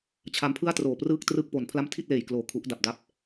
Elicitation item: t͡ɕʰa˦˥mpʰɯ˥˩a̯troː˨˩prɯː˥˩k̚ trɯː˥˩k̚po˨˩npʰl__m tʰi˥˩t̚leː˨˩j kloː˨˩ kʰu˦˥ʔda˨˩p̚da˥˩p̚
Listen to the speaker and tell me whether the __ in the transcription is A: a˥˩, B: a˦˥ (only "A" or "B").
A